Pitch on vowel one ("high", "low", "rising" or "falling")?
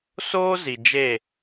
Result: high